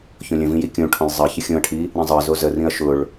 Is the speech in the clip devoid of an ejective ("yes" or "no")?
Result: yes